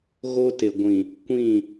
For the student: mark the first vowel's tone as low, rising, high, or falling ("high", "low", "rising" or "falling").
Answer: high